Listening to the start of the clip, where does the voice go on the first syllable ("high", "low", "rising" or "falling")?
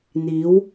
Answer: rising